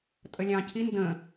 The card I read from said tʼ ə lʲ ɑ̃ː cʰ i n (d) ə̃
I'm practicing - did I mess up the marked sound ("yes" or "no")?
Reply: no